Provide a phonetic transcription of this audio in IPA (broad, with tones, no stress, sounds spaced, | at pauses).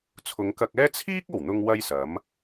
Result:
t͡sʰ ʊ˨˧ ŋ k ɐ˧ k̚ ɛː˥ t͡sʰ iː˥ k̚ o˨˩ w n̪ ʊ˧ ŋ w ɐ˥ j s ɐ˨˥ m